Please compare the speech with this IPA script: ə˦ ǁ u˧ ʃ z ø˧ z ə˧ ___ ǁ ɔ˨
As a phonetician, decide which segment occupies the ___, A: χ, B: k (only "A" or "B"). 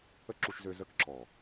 B